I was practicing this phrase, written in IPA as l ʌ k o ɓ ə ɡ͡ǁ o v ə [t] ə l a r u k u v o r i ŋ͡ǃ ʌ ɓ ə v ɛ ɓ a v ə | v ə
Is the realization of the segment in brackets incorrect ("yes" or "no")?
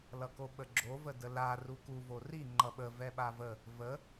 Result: yes